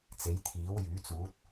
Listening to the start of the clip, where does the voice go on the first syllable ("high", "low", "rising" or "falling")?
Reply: rising